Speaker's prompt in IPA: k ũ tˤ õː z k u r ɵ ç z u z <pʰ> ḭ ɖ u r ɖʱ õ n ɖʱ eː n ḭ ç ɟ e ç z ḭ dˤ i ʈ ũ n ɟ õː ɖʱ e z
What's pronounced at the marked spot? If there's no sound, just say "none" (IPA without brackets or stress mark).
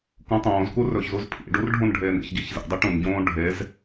pʰ